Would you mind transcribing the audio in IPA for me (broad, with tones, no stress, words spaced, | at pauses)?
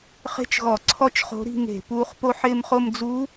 χe̤˥t͡ʃɣɔ˧˩˧ǀʰɔ˥t͡ʃ χo̤˧˥ɾi̤˥˧ŋe̤˧˩˧ puː˧˥χpo˥˧ħɪː˥˧m χo˥˧m d͡zu˧˥